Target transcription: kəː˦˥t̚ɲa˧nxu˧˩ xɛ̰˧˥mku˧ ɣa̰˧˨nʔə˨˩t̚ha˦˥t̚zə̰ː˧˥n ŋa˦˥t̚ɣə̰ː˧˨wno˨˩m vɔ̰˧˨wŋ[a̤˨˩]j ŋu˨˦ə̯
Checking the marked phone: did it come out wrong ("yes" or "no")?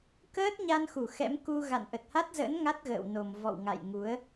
yes